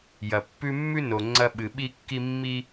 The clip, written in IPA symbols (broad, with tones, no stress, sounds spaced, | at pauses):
j ɐ˩ pː ʉ˦ mː ʉ˥ n o˨ ŋ͡ǀ ɐ˦ ɓ ɨ˨ ɓ i˥ kː i˥ mː i˥